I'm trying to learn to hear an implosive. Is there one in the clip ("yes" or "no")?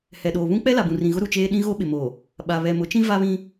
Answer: yes